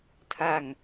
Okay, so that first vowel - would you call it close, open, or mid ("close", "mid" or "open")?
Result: open